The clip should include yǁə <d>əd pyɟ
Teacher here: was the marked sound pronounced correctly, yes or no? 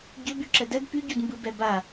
yes